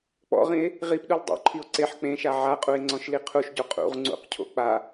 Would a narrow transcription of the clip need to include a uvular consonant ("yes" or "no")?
yes